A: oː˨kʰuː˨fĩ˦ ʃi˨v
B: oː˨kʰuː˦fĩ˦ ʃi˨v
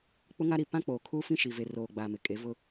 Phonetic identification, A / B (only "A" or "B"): B